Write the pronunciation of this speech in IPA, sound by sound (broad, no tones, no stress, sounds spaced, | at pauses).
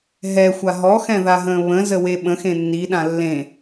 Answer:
ɦ ɛ xʷ a ɦ ɔ x ɛ̃ ð a ɦ ə̃ː β ə̃ z ə w e ɓ ə̃ x ẽ nː i ɗ ã lː ẽ